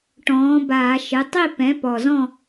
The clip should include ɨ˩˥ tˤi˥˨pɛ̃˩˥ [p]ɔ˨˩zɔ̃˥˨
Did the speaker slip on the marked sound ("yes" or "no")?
no